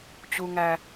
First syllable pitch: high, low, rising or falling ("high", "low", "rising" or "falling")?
low